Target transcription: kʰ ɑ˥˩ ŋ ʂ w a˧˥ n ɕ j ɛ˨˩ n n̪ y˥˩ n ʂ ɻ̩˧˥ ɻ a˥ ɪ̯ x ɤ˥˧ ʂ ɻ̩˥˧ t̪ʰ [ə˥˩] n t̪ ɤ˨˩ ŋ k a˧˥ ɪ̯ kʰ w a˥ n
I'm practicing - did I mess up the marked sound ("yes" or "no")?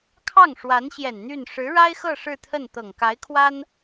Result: no